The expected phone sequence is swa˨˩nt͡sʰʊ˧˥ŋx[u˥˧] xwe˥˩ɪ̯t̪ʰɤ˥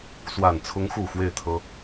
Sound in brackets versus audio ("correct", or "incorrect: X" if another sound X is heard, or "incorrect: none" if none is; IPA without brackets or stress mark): incorrect: u˨˩